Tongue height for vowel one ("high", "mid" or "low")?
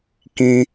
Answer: high